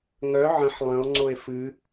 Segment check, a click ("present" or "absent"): present